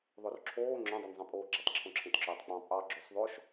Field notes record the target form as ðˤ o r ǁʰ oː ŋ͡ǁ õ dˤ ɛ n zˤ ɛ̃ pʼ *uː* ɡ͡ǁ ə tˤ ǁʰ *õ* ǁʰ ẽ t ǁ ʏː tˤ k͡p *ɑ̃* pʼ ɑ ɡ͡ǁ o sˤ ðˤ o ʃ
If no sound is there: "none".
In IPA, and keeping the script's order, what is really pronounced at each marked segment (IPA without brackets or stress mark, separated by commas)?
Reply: oː, õ, ɑ̃